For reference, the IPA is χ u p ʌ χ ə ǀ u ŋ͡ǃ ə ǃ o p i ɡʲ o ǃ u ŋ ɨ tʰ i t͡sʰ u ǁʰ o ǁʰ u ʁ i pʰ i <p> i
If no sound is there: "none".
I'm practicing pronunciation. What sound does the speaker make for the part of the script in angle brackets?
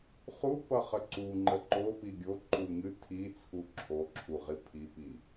p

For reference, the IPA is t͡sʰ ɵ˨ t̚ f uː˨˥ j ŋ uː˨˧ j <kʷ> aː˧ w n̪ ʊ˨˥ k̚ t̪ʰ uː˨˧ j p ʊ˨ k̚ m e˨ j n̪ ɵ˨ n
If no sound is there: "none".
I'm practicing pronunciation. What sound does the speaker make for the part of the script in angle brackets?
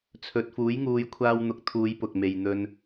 kʷʰ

